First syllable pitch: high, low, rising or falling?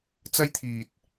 high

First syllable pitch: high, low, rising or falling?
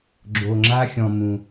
low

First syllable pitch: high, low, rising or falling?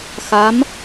rising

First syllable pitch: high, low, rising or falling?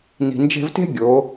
low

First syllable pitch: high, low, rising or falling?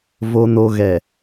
low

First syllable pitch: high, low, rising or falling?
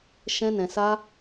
high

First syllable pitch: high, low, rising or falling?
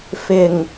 low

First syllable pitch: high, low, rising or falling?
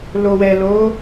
low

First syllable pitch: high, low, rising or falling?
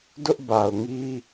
high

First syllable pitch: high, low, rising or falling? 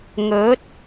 rising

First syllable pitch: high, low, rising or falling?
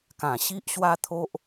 low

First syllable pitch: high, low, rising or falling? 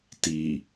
low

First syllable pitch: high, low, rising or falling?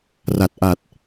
low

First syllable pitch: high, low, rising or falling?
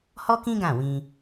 high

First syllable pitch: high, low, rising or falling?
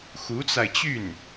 rising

